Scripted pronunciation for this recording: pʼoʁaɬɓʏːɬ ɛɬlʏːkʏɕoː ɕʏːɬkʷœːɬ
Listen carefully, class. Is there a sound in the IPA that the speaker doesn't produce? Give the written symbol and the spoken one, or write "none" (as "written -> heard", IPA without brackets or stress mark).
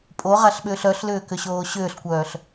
ɛ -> œ